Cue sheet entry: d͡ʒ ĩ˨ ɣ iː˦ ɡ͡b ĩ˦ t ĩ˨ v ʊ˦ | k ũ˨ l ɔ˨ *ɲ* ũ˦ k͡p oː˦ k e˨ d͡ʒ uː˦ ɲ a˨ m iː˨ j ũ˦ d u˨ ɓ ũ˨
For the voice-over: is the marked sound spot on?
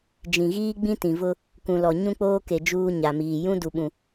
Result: yes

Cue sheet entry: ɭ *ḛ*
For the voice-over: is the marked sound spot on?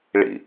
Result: no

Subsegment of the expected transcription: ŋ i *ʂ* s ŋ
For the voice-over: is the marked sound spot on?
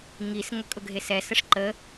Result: no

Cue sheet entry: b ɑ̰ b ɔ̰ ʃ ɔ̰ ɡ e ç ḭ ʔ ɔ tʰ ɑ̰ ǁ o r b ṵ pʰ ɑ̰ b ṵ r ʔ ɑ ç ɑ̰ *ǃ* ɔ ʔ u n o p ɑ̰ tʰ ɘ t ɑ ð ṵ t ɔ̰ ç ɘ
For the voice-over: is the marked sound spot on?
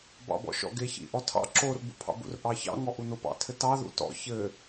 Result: no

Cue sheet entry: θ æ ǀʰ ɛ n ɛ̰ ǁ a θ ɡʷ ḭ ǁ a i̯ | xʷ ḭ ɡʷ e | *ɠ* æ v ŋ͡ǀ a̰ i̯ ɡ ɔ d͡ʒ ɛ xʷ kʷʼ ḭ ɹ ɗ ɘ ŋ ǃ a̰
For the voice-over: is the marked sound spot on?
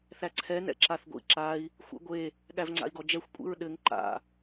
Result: yes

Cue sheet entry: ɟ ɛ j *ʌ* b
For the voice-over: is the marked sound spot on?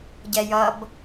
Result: yes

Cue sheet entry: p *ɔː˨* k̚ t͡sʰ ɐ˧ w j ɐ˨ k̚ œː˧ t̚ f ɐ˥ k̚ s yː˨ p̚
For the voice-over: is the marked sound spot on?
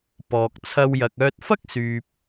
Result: yes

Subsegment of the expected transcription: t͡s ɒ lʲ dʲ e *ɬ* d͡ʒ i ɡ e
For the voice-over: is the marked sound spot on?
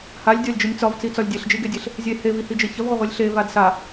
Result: yes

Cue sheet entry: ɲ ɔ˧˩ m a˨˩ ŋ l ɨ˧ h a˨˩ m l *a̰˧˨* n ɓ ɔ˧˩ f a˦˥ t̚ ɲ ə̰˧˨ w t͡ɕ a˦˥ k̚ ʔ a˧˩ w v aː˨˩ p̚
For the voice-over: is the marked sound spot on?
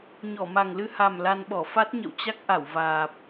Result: no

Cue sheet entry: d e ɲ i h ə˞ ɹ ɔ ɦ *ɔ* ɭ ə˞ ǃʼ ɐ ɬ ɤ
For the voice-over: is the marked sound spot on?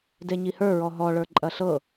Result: yes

